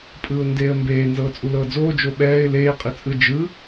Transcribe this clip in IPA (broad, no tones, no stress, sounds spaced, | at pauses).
pʼ ɯː ʊ̯ n d eː ə̯ m b eː n z ɤː t͡sʼ u l ɤː d͡z oː d͡ʒ o ɓ ɛː ɪ̯ l eː qʼ i t͡sʼ ɯ d͡ʒ ɯ